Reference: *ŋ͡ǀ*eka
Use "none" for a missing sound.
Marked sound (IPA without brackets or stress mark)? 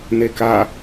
n